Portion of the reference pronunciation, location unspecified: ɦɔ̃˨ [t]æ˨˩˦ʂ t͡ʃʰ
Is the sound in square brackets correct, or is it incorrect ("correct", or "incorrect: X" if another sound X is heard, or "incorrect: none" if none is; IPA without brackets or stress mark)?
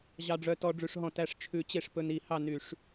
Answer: correct